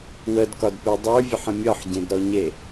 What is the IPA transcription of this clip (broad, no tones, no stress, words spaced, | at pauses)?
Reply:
wədkɒdpe dˤə˞vʲəħə̃ mʲɒħɟẽdɾɔɲe